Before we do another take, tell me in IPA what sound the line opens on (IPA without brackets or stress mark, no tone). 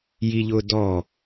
j